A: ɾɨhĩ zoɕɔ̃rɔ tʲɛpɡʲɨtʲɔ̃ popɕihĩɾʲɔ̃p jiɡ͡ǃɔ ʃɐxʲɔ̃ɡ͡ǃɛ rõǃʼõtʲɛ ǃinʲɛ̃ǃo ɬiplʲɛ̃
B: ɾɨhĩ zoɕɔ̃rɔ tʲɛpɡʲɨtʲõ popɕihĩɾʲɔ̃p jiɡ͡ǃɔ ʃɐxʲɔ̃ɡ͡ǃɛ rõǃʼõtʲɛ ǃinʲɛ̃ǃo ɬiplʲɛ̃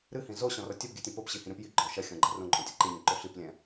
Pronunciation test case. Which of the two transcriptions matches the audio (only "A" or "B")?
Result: A